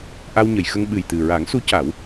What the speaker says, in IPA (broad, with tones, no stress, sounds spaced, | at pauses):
ʔ a˧ w ɲ ə˨˩˨ j x ə˧ ŋ ɓ ɨ˨˩ j t̪ ɨ˨˩ ɹ a˨˩˦ ŋ s u˧˥ c a˨˩˦ w